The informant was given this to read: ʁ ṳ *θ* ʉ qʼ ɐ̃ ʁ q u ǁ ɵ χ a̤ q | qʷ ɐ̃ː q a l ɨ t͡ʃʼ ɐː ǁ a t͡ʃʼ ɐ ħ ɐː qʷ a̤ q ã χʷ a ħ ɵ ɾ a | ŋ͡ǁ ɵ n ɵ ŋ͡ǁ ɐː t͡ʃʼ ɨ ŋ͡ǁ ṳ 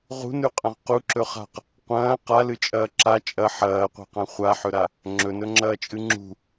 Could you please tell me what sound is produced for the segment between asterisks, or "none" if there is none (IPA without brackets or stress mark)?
n